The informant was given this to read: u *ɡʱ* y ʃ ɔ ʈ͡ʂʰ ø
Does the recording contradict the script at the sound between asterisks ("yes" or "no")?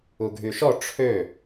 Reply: no